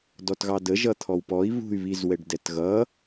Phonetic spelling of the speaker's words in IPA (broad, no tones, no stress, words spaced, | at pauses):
dɔtɣɑdə ʒʌt̪ʰɔwpɔi̯ βṳy̯βizwɛɖ dɛtɣʌ